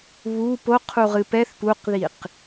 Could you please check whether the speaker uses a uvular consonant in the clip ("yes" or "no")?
yes